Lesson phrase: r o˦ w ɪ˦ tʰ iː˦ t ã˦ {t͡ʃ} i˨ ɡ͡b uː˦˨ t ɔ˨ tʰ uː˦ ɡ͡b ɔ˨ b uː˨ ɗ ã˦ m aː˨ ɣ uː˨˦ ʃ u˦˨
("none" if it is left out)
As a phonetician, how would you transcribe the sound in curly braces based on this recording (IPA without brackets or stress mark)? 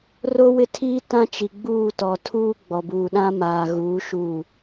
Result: t͡ʃ